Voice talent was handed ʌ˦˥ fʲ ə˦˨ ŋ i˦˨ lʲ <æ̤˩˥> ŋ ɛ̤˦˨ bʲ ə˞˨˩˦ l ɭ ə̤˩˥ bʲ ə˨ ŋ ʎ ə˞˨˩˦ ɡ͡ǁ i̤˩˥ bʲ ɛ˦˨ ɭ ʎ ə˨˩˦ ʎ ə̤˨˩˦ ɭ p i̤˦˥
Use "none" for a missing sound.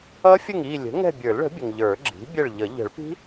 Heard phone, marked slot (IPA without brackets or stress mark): ə̤˩˥